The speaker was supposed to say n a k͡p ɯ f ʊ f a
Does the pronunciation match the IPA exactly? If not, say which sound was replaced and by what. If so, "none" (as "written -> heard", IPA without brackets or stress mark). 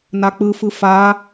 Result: ʊ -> ɯ